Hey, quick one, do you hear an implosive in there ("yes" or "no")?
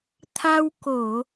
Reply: no